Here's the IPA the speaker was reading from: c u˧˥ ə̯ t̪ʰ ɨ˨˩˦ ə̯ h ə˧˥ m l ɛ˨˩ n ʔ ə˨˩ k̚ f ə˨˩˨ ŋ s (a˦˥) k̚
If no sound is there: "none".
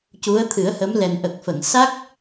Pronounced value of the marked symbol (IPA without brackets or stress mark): a˦˥